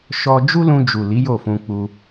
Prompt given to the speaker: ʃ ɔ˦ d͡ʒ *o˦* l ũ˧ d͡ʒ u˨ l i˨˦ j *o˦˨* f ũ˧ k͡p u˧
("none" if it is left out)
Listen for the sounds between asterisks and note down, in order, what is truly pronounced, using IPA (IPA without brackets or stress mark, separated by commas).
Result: u˦, o˦˨